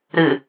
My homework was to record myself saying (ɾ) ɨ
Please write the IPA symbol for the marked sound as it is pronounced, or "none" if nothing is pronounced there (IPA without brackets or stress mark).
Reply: ɾ